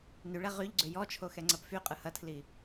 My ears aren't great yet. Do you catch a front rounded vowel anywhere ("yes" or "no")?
yes